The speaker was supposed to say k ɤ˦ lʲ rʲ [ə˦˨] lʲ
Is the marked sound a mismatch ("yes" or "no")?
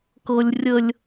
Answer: yes